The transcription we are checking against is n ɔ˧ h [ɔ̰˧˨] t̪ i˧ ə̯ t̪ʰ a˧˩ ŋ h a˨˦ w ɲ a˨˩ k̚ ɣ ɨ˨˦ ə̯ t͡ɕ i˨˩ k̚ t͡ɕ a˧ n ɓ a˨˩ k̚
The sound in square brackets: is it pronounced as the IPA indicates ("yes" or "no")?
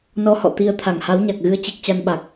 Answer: yes